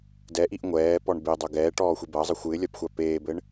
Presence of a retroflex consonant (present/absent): present